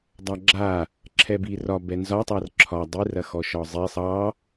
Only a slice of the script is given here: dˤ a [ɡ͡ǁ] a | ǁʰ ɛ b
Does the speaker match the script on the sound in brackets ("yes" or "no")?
yes